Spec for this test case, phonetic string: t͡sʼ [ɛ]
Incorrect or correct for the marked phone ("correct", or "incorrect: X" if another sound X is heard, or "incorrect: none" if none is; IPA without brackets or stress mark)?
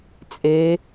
incorrect: e